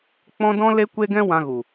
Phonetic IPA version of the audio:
k͡p ɔ̃˦ d ɔ̃˦ l e˦ kʷ e˦ ɡ ɛ̃˦ w ã˧ ɣ u˨

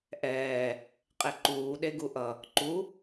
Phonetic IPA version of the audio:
ʔ ɛː | qʼ e ǃ uː ɗ e ɡ u ʔ ʌ | ǃ u

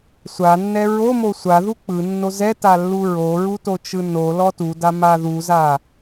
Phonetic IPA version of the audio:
sʷ a nː ɛ ɹ o m o sʷ a ð u k͡p ɯ nː o z ɛ t a lː u ɹ o ɹ u t o t͡ʃ ɯ n o l ɔ t u d a m a ð u z a

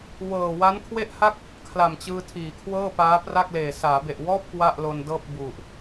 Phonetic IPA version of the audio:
w ɤː˨˩ w a˦˥ n kʰ w e˥˩ ʔ h a˥˩ k̚ | kʰ l a˨˩ m t͡ɕ ɯː˧ tʰ iː˩˦ kʰ w ɤː˥˩ p aː˦˥ p r a˥˩ k̚ l eː˨˩ s aː˩˦ b e˨˩ ʔ w ɔː˥˩ p̚ k w a˥˩ ʔ l o˧ n d ɤː˥˩ p̚ b u˨˩ ʔ

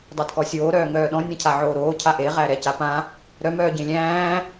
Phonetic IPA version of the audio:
dˤ a d k ɔ sʲ oː ɾ œː ŋ œː ɗ ɔ̃ nʲ ã cʰ a ʕ oː ɾ oː cʰ a ʔ e ʁ æ ɾ ɛ c a p ã | ɾ œ m œː ɟ ẽ lʲ æ̃ː

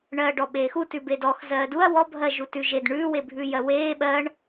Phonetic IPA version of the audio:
ɳ ɜː ɖ ɔ ɓ eː x u t ʉ b e d ɔ x z ɜː d u ɐ̯ w ɔ bʱ ɜ ʒ u t ʉ ʒ e d ɳ ʉː w e bʱ ʉː j ɜ w eː ɓ ɜː ɳ

